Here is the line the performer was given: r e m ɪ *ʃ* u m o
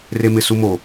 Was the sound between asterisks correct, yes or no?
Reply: no